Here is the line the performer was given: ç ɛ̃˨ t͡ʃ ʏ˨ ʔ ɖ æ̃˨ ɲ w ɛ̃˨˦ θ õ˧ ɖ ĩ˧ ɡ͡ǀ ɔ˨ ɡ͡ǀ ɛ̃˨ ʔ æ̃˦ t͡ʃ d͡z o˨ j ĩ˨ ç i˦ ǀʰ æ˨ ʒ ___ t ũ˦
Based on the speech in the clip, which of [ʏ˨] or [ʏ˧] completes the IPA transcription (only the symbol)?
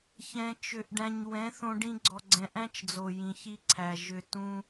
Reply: ʏ˧